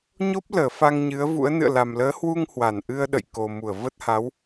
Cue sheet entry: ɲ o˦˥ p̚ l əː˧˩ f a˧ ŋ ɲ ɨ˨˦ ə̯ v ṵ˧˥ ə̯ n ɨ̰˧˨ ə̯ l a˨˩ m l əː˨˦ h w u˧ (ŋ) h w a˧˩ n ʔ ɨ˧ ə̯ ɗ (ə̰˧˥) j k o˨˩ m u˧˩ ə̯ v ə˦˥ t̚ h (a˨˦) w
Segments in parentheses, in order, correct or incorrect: correct, incorrect, correct

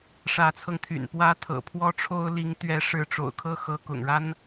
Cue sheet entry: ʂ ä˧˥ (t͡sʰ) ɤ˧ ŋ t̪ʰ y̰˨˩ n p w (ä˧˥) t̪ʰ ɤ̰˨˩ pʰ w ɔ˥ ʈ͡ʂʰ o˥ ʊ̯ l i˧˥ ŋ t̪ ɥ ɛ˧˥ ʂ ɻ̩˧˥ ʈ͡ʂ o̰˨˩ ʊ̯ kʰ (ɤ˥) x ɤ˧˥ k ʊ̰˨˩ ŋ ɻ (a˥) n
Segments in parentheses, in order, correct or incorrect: correct, incorrect, incorrect, correct

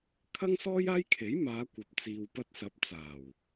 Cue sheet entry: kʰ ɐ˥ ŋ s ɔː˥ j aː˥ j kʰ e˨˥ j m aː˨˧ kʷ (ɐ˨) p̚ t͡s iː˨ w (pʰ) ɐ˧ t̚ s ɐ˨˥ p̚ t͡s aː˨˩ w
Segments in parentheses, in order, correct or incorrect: correct, incorrect

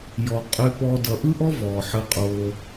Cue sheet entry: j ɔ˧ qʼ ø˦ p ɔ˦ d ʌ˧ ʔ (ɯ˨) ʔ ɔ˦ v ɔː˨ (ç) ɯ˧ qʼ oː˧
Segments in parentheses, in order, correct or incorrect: incorrect, incorrect

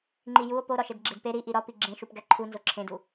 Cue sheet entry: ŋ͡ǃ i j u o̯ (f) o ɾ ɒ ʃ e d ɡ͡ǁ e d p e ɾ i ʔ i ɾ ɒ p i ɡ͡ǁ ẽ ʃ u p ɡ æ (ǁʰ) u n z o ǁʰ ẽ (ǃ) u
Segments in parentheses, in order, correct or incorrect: incorrect, incorrect, incorrect

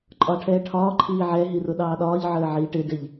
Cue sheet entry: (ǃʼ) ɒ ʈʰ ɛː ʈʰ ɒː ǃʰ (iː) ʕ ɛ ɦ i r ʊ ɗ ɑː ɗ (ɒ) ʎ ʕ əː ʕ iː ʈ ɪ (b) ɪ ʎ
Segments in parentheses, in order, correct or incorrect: correct, correct, incorrect, incorrect

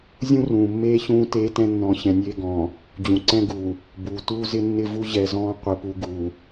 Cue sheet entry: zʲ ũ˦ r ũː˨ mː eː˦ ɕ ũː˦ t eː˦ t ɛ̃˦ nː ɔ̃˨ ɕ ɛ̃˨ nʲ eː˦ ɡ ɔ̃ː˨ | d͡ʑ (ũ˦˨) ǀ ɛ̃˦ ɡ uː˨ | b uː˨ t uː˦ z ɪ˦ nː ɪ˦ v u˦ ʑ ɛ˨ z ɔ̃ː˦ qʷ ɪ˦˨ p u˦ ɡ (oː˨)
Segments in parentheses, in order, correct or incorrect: incorrect, incorrect

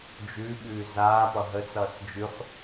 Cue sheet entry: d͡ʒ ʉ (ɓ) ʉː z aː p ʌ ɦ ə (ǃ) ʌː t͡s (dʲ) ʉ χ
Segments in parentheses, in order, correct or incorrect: correct, incorrect, incorrect

